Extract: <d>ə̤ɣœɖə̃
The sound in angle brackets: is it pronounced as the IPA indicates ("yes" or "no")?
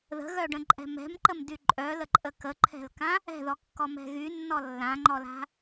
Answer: no